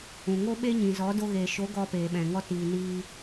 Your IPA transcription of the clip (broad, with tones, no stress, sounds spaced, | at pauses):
ũ˨ ŋ o˦ ɓ e˦ ɲ ĩ˨ z ɔ˨˦ d o˧ ɣ eː˨ ʃ o˨˦ ɡ ɔ˧ p eː˨ ɓ ɛ̃˨ ŋ ɔ˧ t iː˨ n iː˧